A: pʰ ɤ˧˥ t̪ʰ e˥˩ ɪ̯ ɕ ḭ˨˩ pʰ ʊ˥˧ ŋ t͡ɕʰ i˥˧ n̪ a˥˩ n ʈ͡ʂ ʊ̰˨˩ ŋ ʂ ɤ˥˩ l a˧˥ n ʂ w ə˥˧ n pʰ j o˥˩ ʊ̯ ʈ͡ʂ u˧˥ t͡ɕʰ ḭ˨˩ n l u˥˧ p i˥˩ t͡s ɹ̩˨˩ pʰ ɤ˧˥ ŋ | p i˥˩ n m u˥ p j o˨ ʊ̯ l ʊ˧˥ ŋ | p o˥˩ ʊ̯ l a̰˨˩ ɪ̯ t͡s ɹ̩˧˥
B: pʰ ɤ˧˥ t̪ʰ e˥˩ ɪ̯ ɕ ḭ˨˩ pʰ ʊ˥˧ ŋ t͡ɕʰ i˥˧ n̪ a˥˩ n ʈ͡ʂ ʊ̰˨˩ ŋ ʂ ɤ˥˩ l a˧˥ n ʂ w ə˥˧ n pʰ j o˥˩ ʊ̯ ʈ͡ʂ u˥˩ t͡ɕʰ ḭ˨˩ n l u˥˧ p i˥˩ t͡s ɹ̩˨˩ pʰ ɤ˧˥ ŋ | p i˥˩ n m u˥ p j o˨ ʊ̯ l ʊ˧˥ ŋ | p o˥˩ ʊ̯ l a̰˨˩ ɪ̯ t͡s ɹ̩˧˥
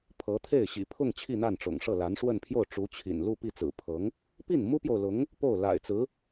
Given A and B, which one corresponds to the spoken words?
A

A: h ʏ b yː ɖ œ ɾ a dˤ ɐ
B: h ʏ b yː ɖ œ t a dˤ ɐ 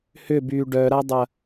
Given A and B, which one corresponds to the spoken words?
A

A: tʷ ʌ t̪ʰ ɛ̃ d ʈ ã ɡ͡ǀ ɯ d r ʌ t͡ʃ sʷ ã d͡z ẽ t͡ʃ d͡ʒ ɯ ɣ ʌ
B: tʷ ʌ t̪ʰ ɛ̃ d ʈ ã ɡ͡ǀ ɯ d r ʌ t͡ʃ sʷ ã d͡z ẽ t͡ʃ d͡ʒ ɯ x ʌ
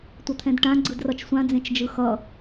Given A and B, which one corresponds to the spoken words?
B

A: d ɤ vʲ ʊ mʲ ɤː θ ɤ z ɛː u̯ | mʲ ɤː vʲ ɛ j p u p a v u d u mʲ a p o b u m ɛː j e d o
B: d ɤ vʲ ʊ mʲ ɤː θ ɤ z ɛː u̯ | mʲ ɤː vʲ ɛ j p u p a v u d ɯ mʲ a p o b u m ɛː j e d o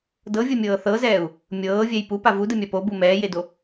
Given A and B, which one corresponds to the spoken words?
B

